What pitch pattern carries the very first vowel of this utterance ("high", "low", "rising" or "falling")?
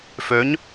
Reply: rising